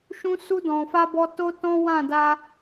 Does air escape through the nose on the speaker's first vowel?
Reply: yes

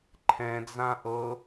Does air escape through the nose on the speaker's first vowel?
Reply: yes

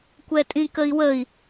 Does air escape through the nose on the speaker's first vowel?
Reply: no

